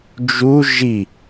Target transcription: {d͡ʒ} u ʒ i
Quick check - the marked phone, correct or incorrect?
correct